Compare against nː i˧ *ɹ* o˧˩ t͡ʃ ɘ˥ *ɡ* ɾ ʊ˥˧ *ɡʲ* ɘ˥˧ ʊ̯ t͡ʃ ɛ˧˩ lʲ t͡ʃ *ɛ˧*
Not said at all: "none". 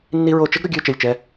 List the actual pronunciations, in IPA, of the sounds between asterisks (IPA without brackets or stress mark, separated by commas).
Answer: ɹ, ɡ, ɡʲ, ɛ˧